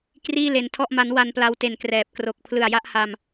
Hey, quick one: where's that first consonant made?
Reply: velum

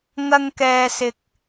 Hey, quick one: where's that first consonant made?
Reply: velum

